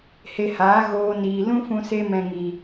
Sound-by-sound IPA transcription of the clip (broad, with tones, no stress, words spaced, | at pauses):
he˧haː˨˦ ɣoː˧niː˨ lũ˦fũ˧se˧mɛ̃˨ ŋi˨